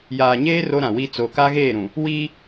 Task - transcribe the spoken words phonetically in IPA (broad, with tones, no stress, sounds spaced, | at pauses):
j aː˨ ɲ eː˦ r o˦ ɾ ã˨ w i˦ t͡s o˨ k a˦ ɣ eː˦˨ ɾ ũ˨ | w iː˦